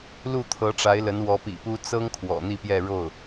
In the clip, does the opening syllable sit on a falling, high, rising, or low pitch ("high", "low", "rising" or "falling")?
falling